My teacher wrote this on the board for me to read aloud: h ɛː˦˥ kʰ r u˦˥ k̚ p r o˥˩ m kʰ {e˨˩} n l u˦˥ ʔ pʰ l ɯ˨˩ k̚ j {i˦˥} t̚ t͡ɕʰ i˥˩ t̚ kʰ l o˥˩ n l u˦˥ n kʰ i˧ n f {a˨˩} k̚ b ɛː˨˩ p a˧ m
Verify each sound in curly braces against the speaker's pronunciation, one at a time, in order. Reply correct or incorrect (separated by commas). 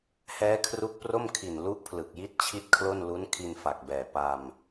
incorrect, correct, correct